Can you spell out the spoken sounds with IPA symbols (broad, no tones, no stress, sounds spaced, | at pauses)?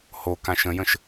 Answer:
h o k ã ʃ ə̃ j ə̃ ʃ